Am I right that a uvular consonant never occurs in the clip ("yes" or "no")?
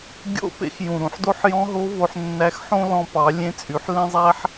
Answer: yes